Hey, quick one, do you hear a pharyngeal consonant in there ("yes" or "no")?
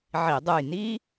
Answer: yes